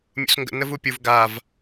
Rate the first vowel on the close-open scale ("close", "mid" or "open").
close